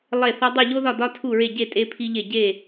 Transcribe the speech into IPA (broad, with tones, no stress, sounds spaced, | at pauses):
lˠ e˥˨ θ ɒ˥ dˤ u˥˨ ʎ o˥ ð ɒ˥˨ d ɒ˥ tʰ u˥˨ ɹ e˥˨ ɟ e˥˨ tʼ e˥ pʰ i˥ ʎ e˥˨ ɟ e˥˨